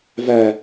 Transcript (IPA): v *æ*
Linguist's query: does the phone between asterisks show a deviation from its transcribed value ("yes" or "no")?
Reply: no